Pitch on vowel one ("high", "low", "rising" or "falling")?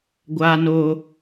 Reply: high